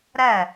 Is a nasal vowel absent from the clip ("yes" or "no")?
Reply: yes